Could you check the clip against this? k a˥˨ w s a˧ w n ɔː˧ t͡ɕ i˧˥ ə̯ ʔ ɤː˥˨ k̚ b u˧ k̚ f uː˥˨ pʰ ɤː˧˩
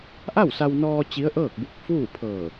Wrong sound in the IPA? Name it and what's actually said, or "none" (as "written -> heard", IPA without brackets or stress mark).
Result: k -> ʔ